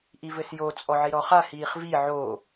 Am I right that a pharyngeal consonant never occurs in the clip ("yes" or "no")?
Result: no